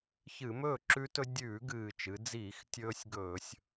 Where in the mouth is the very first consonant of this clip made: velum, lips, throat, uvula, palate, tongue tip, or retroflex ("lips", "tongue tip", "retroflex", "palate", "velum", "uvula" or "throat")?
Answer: palate